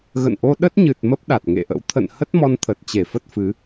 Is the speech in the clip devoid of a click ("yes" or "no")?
yes